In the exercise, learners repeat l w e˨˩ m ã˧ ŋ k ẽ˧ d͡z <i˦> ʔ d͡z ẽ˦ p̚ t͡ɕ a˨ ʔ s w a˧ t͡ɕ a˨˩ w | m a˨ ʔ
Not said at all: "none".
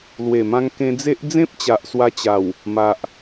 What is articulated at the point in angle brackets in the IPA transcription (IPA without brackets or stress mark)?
e˦